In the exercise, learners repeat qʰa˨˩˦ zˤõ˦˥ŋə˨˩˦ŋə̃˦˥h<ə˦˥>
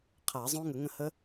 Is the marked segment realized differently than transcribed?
no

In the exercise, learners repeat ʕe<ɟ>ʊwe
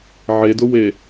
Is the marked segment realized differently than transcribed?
yes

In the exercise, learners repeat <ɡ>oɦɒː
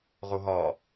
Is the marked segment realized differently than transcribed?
yes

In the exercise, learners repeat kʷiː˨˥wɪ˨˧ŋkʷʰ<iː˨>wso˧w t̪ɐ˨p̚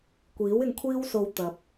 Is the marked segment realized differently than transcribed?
yes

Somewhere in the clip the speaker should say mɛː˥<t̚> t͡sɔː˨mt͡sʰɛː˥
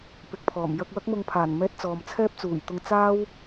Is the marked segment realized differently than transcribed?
no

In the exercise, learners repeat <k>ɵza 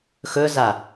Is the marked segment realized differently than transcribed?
yes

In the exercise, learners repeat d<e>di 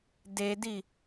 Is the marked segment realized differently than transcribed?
no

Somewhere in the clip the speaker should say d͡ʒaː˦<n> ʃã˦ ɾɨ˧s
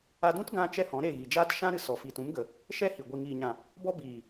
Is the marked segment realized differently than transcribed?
yes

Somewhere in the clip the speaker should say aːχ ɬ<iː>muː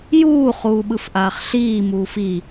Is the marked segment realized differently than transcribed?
no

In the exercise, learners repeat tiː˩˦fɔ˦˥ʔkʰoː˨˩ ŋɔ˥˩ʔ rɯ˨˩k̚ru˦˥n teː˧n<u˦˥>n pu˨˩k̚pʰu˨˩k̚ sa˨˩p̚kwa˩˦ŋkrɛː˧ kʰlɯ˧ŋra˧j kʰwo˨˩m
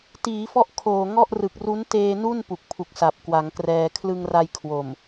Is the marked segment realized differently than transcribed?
yes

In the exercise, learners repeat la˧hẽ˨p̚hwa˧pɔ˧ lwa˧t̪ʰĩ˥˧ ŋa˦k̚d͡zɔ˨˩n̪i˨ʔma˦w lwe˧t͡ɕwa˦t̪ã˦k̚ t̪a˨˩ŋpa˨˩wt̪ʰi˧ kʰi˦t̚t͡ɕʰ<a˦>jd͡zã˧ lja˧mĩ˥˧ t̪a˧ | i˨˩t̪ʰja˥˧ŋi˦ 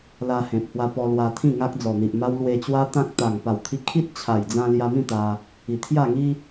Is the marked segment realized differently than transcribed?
yes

